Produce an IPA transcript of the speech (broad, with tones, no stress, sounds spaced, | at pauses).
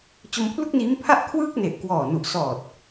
t͡ɕ o˧ m pʰ l u˥˩ k̚ n iː˦˥ m pʰ a˥˩ ʔ kʰ w ɯː˥˩ k̚ n e˨˩ ʔ k w ɔː˨˩ n u˨˩ ʔ s ɔː˨˩ t̚